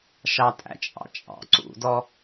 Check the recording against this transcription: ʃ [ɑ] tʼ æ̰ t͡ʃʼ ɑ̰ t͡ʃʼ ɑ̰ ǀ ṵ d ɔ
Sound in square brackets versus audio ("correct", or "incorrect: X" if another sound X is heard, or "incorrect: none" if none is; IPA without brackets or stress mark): correct